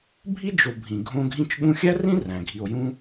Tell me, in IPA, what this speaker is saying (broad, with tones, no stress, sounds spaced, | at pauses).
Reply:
bʱ i˥ d͡ʒ o˨ bʱ ĩ˩ ɡʱ õ˦ ɡʱ ĩ˥ t͡ʃ ɠ ũ˥ xʲ æ˥ r ĩ˥ r æ̃˩ ɡʱ i˨ o̯ j ũ˥